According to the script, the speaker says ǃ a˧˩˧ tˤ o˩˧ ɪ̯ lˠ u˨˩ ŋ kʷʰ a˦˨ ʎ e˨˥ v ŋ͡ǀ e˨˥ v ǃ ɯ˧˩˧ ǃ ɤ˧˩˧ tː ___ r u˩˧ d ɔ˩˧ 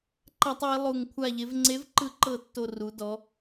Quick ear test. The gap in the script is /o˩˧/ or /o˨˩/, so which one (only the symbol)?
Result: o˨˩